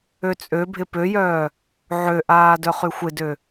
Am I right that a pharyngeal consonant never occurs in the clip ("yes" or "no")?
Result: no